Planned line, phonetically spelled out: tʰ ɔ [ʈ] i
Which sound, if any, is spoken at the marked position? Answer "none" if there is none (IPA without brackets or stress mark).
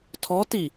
t